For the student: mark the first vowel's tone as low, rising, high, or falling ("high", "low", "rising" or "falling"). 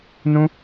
high